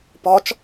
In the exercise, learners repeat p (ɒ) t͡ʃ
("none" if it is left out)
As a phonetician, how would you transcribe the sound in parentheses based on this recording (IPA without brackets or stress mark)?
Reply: ɒ